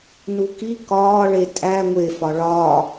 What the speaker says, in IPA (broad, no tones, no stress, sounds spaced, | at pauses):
n u k i k ɒː ɭ e tʼ æ ŋʷ e f ɒ ɭ ɒː